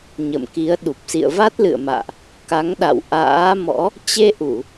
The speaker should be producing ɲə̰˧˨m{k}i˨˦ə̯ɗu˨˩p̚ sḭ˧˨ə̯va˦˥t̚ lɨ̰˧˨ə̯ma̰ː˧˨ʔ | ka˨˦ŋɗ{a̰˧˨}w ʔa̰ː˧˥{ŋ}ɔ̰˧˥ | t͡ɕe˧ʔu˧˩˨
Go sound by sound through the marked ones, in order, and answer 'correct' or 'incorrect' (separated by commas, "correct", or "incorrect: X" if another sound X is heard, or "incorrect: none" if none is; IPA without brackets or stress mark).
correct, correct, incorrect: m